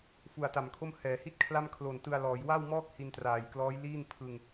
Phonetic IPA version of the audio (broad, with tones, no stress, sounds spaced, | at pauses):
f u˨˩ a̯ t a˨˩ m kʰ o˥˩ m h ɛː˩˦ h i˥˩ t̚ kʰ l a˥˩ m kʰ l oː˨˩ n t ɯ˧ a̯ l ɔː˩˦ j w a˥˩ w m ɔː˥˩ k̚ h i˧ n t r aː˨˩ j k l ɔː˦˥ j l iː˥˩ n pʰ ɯ˧ ŋ